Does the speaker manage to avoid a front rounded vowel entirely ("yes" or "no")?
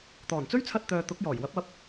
no